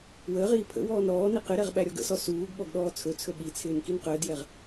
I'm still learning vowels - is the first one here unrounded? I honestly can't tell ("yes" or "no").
yes